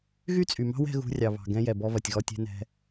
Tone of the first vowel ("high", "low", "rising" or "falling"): high